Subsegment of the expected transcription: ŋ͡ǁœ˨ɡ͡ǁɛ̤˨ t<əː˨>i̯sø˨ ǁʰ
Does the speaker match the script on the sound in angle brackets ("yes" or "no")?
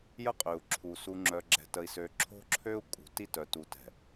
no